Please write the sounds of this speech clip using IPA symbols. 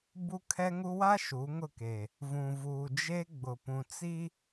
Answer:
bu˦kʰɛ˦ŋu˦ wa˦ ʃu˨˦ŋʊ˦˨ke˨ | vũ˨vuː˨ d͡ʒe˦ ɡ͡bʊ˨pũ˨ t͡si˦

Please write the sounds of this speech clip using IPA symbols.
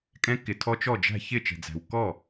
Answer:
kʼɛ̃˦˥ kɪ˩tʰɔ˦˥t͡ʃɔ˥˩d͡ʒæ̤˥˩ çɪ˥˩t͡ʃɛ̤˩d͡zæ̤˩w kɔ˥˩

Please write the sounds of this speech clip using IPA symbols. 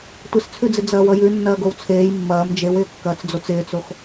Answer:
tʷɪst͡sʰʉd͡zɪ d͡zɐːwʌjʉ nːɐːɡowt͡sʰeːj mːɐːm d͡ʒewɪːkːɐːt͡sd͡zot͡s ɪːt͡sox

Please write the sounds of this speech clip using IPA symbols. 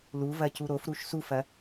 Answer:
luvɐ cuɾofɾuʃ sufɐ

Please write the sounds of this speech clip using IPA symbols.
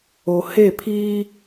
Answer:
o˨he˦˨pʰiː˦

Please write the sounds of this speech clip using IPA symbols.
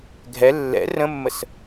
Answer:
ɡʱɛ lːɛ̰ rə̃mːəs

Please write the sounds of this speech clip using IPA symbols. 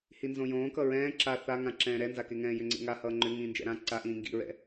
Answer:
hinzõjõːkʌ ɹɛ̃ː ǁa θaŋã ǁɛ̃ːɾɛnzake ŋɛ̃ːjʏŋ͡ǀḛŋa hʌːŋ͡ǃʏ ŋĩːnd͡ʒɛ̰ɾã ǀaʔĩː ŋɡḭɹɛ̰

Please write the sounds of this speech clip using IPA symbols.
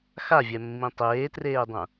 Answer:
xavʲɛmːĩ tˤeːtreːdˤũ

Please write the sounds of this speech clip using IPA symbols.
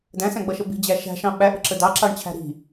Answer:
dæ̃sæ̃ɡ͡bʌʃə bi̤d͡ʑæ ʃæ̤ʃɑ̃ ɓæʔə̤ǁə dɑǁɑɳt͡ɕʰæ̤ ɾi̤

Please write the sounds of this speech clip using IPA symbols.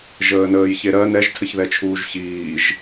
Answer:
ʒəːnəːjçeɾɜ nɛʒtʰəçðɛt͡ʃʰuːʒ çiːʒ

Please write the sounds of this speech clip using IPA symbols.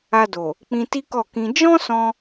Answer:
a˧do˨ | k͡pĩ˧ti˦kɔ˦˨kĩ˧ d͡ʒɔ̃˦sɔ̃˧

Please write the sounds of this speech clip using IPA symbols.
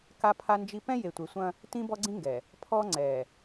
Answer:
ka˦pʰa˦nd͡ʒi˦ pɛ̃˦je˨tʷe˨sʷɐ̃˦ | tĩ˦bɔ˦ɡ͡ǀĩ˦ŋɡɛ˨ | pʰɔ˦ŋ͡ǀɛ˨

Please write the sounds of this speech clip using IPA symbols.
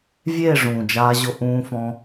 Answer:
vʲeː˦˨ ʐũː˨d͡ʒaː˧ʑʊ˧ ʔũː˧fɔ̃˧

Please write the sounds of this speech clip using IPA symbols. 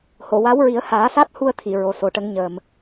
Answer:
ho˨˩˨wa˧˥wɹi˨˩˦ə̯ haː˨˩˦sa˦˥t̚hu˧ə̯ t̪ʰi˨˩˨ɹo˨˩ so˨˩ʈə˧˥ŋ ɲəː˨˩m

